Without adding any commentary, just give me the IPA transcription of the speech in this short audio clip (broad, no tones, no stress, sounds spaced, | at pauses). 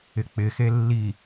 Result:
ɪ k͡p ɪ x e lː i